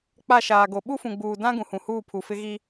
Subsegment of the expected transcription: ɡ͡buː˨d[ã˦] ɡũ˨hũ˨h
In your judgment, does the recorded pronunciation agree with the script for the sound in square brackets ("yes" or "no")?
yes